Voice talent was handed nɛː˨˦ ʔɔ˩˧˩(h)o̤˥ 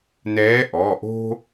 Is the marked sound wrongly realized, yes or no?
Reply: yes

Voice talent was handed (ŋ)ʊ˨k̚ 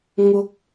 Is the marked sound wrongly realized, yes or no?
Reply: no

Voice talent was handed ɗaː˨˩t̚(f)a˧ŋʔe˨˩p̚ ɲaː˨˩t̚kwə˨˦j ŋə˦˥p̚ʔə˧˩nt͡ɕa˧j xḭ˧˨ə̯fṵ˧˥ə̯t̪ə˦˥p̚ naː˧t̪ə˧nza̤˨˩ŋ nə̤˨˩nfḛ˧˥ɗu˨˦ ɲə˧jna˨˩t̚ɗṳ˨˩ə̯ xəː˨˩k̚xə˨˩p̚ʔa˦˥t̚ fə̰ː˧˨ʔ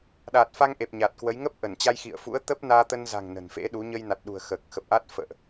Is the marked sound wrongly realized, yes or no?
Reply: no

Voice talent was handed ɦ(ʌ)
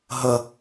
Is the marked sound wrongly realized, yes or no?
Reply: no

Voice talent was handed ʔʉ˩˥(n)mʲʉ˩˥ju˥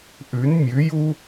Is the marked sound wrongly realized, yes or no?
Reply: no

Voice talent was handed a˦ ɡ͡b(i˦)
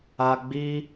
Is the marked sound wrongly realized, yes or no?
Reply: no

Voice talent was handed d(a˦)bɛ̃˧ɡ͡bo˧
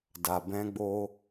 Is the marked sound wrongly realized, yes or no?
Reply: yes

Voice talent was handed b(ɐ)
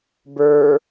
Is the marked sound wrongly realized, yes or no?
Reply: yes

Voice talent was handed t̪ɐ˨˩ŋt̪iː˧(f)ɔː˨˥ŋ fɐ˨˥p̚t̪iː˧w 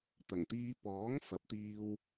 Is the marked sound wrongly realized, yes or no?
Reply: yes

